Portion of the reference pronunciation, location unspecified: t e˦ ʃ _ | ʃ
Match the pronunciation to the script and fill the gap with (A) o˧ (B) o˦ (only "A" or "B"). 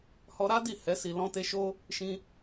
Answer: B